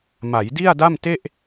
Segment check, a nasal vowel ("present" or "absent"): absent